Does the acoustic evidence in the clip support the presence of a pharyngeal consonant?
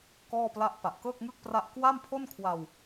no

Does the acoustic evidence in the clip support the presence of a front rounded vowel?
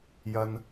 no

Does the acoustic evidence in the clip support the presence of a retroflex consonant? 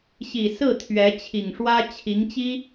yes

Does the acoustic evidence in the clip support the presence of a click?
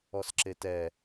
yes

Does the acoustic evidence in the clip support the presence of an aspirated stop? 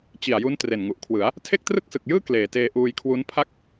yes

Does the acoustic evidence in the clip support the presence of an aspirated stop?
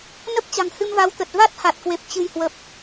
no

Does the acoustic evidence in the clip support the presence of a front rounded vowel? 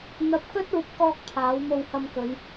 no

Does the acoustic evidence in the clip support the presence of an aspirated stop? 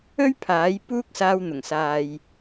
yes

